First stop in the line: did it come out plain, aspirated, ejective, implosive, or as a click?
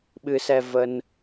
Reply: implosive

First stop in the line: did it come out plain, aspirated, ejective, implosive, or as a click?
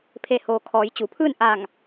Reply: aspirated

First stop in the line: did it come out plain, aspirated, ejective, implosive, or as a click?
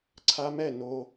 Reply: click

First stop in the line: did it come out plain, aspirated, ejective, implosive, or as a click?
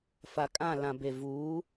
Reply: ejective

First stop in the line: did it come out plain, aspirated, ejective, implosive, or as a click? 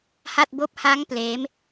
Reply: plain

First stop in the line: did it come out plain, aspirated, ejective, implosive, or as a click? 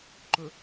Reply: click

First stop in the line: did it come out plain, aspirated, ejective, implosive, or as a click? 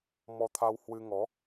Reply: aspirated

